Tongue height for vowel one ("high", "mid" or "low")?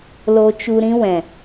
mid